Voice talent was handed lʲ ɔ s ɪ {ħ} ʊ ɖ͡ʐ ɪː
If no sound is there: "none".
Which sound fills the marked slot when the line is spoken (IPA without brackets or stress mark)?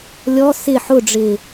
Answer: ħ